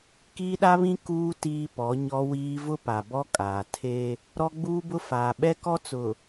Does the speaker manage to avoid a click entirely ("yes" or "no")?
yes